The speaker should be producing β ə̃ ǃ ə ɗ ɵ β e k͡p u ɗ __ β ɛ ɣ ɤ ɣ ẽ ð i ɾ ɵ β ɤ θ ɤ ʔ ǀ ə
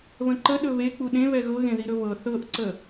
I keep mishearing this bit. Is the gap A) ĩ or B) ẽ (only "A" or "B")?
B